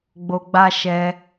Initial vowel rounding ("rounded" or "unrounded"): rounded